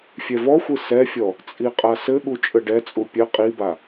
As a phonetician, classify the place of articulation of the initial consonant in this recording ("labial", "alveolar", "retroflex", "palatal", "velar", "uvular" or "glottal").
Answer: labial